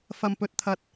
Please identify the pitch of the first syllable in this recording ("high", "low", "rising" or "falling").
low